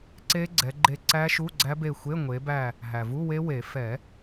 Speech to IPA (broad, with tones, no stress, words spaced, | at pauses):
ǀe˦˥ɡ͡ǀɛ˨˦ɡ͡ǃe˦˨ ǀæ˦˥ʃu˧˥˧ɡ͡ǀæ˦˥be˦˨ xʷe˧˥˧ŋʷe˨˦bæ˦˨ | ɦæ˩vu˧˥˧we˦˥we˨˩˦ fɛ˨˩˦